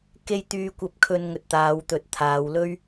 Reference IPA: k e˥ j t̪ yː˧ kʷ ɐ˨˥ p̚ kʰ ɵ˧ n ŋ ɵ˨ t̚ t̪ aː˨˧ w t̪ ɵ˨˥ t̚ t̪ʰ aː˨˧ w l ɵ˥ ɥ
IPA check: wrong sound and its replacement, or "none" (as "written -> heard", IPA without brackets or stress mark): ɐ˨˥ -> ɐ˧